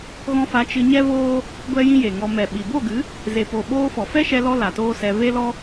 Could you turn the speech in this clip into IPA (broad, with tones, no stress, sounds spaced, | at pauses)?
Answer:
ɣ ɔ̃˧ f a˨˦ t͡ʃ ɨ˧ ɲ ɛ˦ v oː˦ | ɡʷ ɛ˦ j ĩ˦ j e˨ ŋ ɔ˧ m ɛ˨ ɓ i˨ b o˦˨ ɡ ɨ˨˦ | z e˨ p o˨ ɓ oː˧ f ɔ˨ f ɛ˦ ʃ ɛ˧ l ɔ˦ l a˨ t oː˦ s ɛ˧ v e˦ l ɔ˦